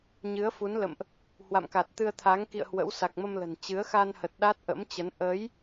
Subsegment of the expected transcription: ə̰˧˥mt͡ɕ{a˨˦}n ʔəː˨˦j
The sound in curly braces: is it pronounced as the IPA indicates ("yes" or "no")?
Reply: no